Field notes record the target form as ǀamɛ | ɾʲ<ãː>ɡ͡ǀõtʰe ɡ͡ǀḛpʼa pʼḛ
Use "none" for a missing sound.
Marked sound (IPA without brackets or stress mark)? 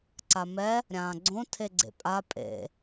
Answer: ãː